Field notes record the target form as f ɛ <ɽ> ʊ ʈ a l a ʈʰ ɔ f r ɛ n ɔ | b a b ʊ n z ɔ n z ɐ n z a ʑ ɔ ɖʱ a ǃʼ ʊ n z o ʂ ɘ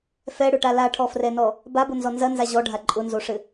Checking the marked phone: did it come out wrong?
no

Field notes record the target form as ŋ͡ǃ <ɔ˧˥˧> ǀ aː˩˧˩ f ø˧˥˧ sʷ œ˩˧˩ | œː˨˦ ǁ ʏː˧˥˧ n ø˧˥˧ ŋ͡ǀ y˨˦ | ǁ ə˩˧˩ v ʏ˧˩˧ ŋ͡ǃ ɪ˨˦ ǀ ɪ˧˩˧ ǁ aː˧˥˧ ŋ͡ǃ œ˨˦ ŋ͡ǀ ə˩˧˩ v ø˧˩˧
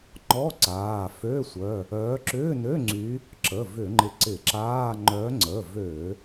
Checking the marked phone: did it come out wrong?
no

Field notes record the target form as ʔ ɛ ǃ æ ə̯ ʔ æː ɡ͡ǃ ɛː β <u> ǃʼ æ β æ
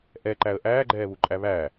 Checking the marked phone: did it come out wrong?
no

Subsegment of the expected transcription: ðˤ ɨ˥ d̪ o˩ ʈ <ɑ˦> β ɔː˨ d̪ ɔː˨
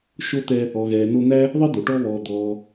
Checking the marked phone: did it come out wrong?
yes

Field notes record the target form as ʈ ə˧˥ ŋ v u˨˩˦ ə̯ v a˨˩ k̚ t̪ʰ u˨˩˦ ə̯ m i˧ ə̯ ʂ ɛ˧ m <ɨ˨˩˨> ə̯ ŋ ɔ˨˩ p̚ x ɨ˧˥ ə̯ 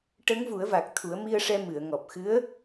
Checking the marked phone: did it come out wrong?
no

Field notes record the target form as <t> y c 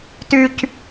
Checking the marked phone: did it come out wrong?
no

